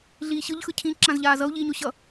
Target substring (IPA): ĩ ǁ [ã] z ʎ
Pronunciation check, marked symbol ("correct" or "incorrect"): correct